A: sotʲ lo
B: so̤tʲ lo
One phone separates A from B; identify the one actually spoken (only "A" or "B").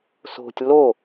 B